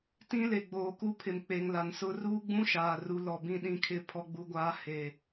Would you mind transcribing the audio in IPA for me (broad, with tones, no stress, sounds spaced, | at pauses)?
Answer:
t ĩ˦ l e˨ ɡ͡b oː˨ k u˦ pʰ ɪ˨ m k͡p e˨ ŋ l a˨ n s ʊ˦ r uː˦ ɡ͡b ũ˦ ʃ aː˨ r u˨˦ l ɔ˨ b ĩ˦˨ ɗ ĩ˦˨ kʰ ɪ˦˨ pʰ ɔ˦ ɡ͡b u˦ ɡʷ aː˦ h e˨